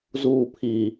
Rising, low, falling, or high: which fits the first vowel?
low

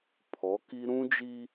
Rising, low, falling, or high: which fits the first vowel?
rising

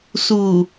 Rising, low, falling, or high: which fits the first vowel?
low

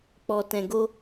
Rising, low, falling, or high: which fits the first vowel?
low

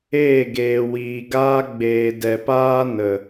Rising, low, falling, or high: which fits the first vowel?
falling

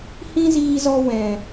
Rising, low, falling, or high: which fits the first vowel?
high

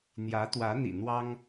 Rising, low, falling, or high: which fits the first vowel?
rising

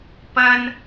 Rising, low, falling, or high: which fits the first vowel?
high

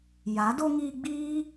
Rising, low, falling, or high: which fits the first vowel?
rising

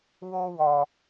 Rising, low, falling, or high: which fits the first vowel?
high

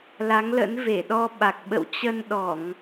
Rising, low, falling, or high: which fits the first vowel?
rising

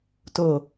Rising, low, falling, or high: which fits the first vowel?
low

